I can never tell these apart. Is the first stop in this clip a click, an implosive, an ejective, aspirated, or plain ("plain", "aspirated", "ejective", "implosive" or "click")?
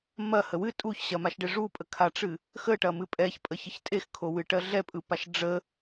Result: ejective